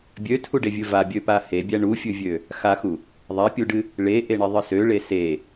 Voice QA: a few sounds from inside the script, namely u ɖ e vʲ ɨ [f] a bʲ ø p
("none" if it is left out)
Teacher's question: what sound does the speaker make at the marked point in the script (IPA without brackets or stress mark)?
v